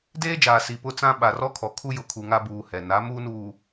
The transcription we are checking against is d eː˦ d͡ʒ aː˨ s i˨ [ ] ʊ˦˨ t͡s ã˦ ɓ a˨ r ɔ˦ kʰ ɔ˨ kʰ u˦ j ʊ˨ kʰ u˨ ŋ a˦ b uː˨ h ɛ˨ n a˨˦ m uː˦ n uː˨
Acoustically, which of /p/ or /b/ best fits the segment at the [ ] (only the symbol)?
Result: p